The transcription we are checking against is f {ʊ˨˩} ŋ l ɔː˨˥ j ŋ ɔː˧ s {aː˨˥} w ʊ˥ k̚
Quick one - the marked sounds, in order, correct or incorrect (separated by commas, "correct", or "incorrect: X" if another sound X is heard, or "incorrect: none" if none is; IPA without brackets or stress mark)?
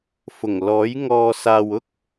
correct, incorrect: aː˨